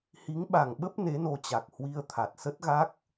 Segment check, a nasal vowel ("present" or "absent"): absent